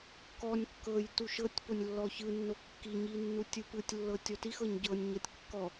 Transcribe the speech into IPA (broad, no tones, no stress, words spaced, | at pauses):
kɔnʲ kːɤj tuʃɤtʲponʲ lːɔçɯnːo kːiɲi nːutʲɯpɯtʲlːɤ tʲɔtixɤɲ ɟɤnʲɲɤtʲ kːɔ